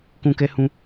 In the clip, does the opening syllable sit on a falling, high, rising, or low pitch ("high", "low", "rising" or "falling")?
high